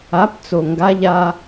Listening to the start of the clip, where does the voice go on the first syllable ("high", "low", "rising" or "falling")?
rising